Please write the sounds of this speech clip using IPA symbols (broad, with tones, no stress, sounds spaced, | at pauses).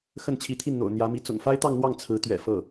x ə˥˩ n t͡ɕʰ i˧˥ t̪ʰ i˥˩ n n̪ o̰˨˩ ʊ̯ n̪ j ä˧˥ m i˧˥ t͡s ʊ̰˨˩ ŋ f a˥ ɪ̯ t̪ ɑ˥˧ ŋ n̪ w ɑ˥˩ ŋ t͡sʰ ɹ̩˧˥ t̪ ɥ ɛ̰˨˩ f ɤ˥˩